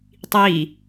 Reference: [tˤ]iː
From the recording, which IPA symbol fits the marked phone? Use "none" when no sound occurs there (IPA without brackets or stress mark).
tˤ